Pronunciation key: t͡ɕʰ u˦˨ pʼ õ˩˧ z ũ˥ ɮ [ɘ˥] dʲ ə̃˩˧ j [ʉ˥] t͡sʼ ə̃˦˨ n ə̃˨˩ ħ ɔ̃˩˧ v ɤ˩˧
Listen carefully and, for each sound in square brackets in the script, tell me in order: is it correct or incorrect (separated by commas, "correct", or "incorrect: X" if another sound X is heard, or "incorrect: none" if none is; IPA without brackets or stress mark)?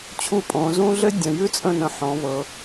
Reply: correct, correct